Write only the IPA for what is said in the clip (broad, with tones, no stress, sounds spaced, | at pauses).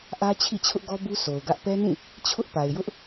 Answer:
ʔ ä˦ t͡ɕʰ ḭ˦˨ t͡ɕʰ ʊ˦ ʔ ɡ ɔ˦ b u˦ sʰ o˨ ʊ̯ ɡ ä˦ ʔ p ɛ˦ n ĩ˦˨ | t͡ɕʰ ʊ˦ ʔ p a˨ ɪ̯ j ʊ˦ ʔ